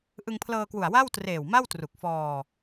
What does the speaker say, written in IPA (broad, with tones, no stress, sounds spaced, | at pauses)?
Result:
ʔ ɯ˧ ŋ pʰ l ɤː˧ k w u˨˩ a̯ w a˥˩ w t r eː˨˩ w m a˥˩ w t r u˨˩ k̚ f ɔː˧